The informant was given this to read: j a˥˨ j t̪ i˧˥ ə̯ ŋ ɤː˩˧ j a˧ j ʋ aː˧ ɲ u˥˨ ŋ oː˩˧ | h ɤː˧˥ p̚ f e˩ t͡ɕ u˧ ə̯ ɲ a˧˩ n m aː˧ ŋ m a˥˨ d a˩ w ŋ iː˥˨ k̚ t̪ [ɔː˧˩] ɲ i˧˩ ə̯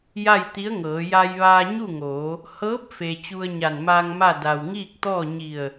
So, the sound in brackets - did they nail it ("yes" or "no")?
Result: no